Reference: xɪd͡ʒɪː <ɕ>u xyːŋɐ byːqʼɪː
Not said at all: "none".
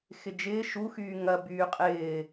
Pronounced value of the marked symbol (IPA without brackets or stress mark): ʃ